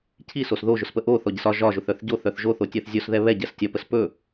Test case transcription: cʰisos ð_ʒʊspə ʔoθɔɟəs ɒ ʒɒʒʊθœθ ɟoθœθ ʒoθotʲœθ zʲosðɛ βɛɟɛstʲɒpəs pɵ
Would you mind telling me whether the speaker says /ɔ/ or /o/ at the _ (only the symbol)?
o